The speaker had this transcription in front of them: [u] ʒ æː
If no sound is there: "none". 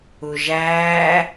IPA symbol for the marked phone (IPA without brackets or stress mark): u